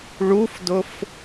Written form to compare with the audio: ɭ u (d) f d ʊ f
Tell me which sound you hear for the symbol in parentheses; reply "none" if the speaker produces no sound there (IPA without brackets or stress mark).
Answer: none